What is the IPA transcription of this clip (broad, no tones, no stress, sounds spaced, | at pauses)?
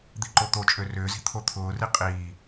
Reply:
d̪ i ǃ o t̪ o t͡ʃʼ ø r ʏː z i̤ t̪ʰ o t̪ʰ ʊː r i qʼ iː